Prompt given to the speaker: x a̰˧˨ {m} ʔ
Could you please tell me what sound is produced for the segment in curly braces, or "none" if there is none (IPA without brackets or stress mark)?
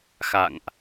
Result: ŋ